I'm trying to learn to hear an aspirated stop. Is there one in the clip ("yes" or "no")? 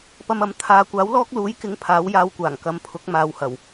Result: yes